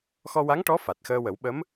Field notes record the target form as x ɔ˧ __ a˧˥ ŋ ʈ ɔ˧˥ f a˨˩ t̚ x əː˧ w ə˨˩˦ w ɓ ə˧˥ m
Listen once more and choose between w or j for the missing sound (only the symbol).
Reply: w